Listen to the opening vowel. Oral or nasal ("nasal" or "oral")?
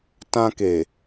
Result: nasal